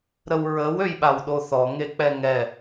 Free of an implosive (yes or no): no